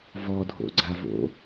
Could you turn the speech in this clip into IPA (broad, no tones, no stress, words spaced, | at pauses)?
vɔdʱo̰ɡ͡ǀavo̰